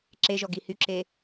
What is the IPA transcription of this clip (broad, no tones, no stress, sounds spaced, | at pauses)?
ǁ e ʒ ɔ ɡ i h y ǁ e